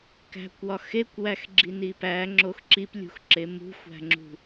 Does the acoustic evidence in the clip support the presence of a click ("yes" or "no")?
yes